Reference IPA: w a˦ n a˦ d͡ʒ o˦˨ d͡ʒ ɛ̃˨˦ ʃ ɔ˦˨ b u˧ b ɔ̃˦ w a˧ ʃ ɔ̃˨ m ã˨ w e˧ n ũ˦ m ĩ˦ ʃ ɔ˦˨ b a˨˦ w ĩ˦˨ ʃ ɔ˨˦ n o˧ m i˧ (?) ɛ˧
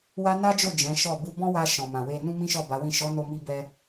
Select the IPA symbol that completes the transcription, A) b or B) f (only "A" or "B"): A